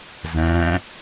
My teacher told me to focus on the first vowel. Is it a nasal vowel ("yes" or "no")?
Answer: yes